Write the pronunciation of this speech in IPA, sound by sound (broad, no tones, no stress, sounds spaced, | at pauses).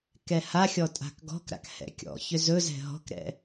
k ɛ h a xʲ ɔ tʼ a̤ k ɡ ɔ̤ k ɾ a̰ k h ɛ̰ kʲ ɔ̰ ç ʏ z ɵ z ɛ̤ ɦ ɔ̤ k ɾ ɛ̰